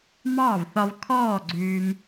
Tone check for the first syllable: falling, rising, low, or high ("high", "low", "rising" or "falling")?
falling